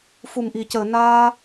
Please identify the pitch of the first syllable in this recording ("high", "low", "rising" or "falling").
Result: low